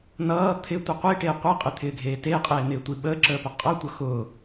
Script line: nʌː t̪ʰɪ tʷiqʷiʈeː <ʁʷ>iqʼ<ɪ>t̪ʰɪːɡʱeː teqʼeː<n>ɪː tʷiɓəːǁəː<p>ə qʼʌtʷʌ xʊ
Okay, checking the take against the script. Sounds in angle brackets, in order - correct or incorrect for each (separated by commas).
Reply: incorrect, correct, correct, correct